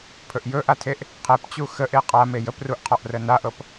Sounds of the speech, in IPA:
pʰ ɵ ʔ j ɵ ʔ a tʰ e ʔ | qʰ e p t͡ɕ u x ə ʔ e qʼ a m e j ə p r u ʔ qʰ ɔ ʔ r ə n a ʔ ɤ p

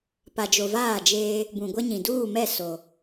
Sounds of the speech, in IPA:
p a˨ d͡ʒ o˨ v aː˦˨ d͡ʒ eː˦ | b ũ˨ ɡʷ ɛ˦ ɲ ĩ˨ d uː˦˨ m ɛ˦˨ s o˨

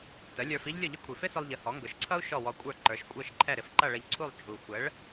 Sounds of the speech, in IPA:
t ə˩˥ lʲ ə˞˧ f i˥ ʎ lʲ ʊ˥˩ ʎ ɪ˥ kʷʰ i˩ f ɪ˥ s ʊ˧ lˠ ʎ ə˩˥ h ɔ˩˥ ŋ ɡ ʊ˩˥ ʃ ǀʰ ʌ˥ u̯ ʃ ɔ˥˩ w ɔ˧ kʷʼ ə˞˥˩ ǃ ə˞˩˥ ʃ kʷʼ ə˞˥˩ ʃ ǃʰ ɛ˥˩ ɾ ɪ˧ f ǃ ʌ˥˩ ɭ ə˧ ʎ ǀʰ u˥˩ lˠ t͡ʃʼ u˩ xʷ ə˩˥ ɭ

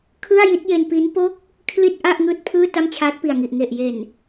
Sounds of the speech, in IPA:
kʰ ɯ˥˩ a̯ j i˦˥ t̚ j e˧ n p i˦˥ n p o˥˩ k̚ | kʰ l i˥˩ t̚ ʔ a˥˩ ʔ ŋ ɯː˥˩ t̚ pʰ ɯː˥˩ t a˥˩ m t͡ɕʰ aː˦˥ t̚ p i˨˩ a̯ ŋ i˨˩ ʔ ŋ e˨˩ ʔ j e˨˩ n

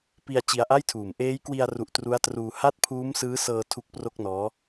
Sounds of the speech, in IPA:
p i˧ a̯ t͡ɕ i˧ a̯ ʔ a˥˩ j tʰ uː˨˩ m ʔ eː˦˥ j k w i˧ a̯ r u˨˩ ʔ t r u˦˥ a̯ t r uː˧ h a˥˩ t̚ pʰ uː˦˥ m s ɯː˦˥ s ɤː˧ tʰ u˦˥ k̚ p r o˥˩ k̚ n ɔː˦˥

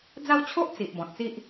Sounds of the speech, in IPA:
d͡z a˦ w t͡ɕʰ o˦ ʔ t͡s i˨ ʔ b ɔ̃˨ t̚ t͡s i˦ ʔ

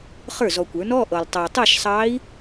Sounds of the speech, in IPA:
χ ə˞˥˩ z ɔ˨ kʷ ə˞˩˥ n ɔ˧˥˧ ʔ ɤ˨ lˠ tˤ ɑ˨ tˤ ɤ˥˧ ʃ sˤ ɑ˧˥ i̯

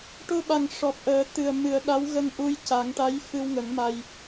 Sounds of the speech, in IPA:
ʈ o˧ ɓ a˨˩ ŋ ʂ ɔ˨˩ p̚ ʔ əː˨˩˦ t̪ ɨ˨˩ ə̯ m ɨ˨˩˦ ə̯ ɗ a˧˥ w ɣ ə˧ ŋ ʔ u˧ j c a˨˩˦ ŋ ʈ a˧˥ j f ɨ˧ w ŋ ə˨˩˦ ŋ m a˧ j

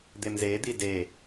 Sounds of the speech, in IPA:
d̪ e m z e d̪ i d e

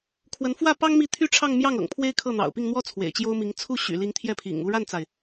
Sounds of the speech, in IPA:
kʰ w ə˧˥ n f w ä˥˩ p ɑ˥ ŋ m i˥˩ t̪ʰ y˥ ʈ͡ʂʰ ɑ˥˧ ŋ m j ɑ˥˩ ŋ ɤ̰˨˩ ŋ pʰ w e˥ ɪ̯ kʰ ɤ˥˩ n̪ ɑ̰˨˩ ʊ̯ p i˥˩ ŋ n̪ w ɔ˥ t͡sʰ w ḛ˨˩ ɪ̯ t͡ɕ j o˥ ʊ̯ m i˧˥ ŋ t͡sʰ u˥˩ ɕ y̰˨˩ l i˧˥ ŋ t̪ʰ j ɛ˥˩ pʰ ḭ˨˩ ŋ u˥˧ ɻ a˥˩ n t͡s a˩ ɪ̯

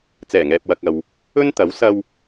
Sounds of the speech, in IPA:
t͡s ɛː˨˩ ŋ ɛː˨ p̚ w ɐ˨ k̚ ɐ˨ w | ɵ˥ n t̪ ɐ˨˥ w s ɐ˧ w

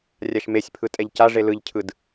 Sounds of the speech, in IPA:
rʲ a ʃ m e sʲ pʰ ɯ tʼ ɛ ʎ c a ʐ e l ɯ ʎ cʰ ɯ d

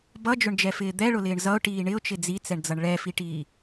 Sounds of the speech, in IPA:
b ʌ d͡ʒ ʊ ɳ d͡ʒ ɛ f ɪː d̪ ɛ ɭ ʊ l ɪː ɳ z ʌ ʊ̯ ʈ iː ɳ ɪ ʊ̯ t͡ʃ ɪ d͡z i t͡s ɛ ɳ d͡z ʌ ɳ ɭ ɛ f i ʈ iː

